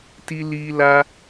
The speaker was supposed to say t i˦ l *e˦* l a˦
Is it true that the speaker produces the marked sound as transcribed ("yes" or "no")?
no